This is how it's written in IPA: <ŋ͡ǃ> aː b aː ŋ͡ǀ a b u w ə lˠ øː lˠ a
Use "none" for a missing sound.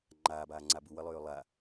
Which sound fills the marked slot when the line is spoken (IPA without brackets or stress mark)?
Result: ŋ͡ǃ